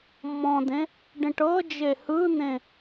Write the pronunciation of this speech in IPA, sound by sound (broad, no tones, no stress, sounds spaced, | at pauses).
mː ɔ̃ d ẽ | ɖ ĩ ʈ ɤ d͡ʒ e h ɯ n̪ ẽ